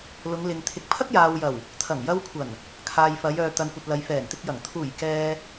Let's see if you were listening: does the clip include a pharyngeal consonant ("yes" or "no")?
no